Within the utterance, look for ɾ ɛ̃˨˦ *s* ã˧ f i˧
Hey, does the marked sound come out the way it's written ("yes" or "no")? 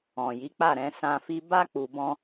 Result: yes